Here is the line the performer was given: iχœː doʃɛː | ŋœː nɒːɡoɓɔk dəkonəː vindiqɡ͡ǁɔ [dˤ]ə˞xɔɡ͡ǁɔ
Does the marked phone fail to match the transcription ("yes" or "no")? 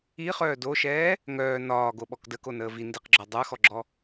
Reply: no